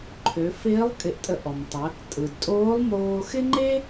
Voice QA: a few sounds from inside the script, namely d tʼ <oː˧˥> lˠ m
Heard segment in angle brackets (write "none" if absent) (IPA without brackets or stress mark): oː˧˥